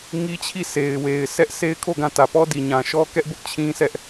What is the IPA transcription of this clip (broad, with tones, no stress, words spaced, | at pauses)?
ŋi˦t͡ɕʰi˦˨ sʰe˨ɪ̯we˨ɪ̯ sʰɛ˦ʔsʰe˦ɪ̯kʰo˦˨ɡã˦˨ tä˨pɔ˦di˨ ɲã˨ ʃɔ˦kɛ˦ʔbʊ˦ʔ t͡ɕʰĩ˦sɛ˦ʔ